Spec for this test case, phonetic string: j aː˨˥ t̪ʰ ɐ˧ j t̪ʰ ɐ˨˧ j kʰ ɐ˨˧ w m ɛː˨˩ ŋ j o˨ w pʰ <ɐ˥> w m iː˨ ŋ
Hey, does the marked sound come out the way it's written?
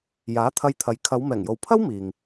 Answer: yes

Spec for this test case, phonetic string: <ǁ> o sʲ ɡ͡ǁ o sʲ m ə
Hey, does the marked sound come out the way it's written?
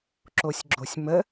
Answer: yes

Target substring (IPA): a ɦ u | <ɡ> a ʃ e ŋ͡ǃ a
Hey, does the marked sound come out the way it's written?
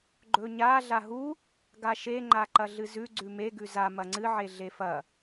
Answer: yes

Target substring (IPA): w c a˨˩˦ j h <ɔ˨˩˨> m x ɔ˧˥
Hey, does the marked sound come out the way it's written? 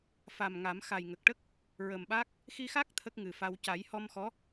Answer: no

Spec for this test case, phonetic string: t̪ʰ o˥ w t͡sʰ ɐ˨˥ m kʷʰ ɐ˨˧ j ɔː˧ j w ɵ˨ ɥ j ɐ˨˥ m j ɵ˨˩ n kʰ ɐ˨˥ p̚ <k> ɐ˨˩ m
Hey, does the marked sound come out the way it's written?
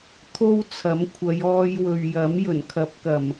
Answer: yes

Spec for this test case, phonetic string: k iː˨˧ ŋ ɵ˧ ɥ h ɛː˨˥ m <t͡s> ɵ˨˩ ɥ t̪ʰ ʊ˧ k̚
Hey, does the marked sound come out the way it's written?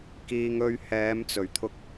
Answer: yes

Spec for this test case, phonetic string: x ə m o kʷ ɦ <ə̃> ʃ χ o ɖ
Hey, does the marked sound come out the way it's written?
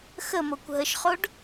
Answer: no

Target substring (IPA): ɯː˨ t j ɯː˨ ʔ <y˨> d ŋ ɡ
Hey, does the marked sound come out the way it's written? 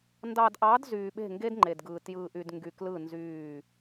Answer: yes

